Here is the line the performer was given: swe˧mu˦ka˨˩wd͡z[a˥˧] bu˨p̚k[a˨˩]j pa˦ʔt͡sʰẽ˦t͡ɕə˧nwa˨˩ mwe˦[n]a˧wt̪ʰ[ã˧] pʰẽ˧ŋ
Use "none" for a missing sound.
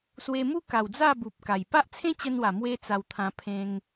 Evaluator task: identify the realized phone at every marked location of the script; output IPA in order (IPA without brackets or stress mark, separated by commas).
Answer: a˥˧, a˨˩, t͡s, ã˧